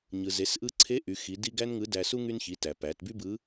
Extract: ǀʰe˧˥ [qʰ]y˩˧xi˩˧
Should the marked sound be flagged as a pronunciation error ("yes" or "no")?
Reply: yes